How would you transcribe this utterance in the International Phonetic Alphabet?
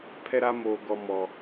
pʰɛ˦ɾa˦moː˨ ɡɔ˨ mɔ˨

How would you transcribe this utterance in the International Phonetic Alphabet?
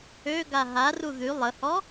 øɡa ɦaru ðy lˠəhɔ

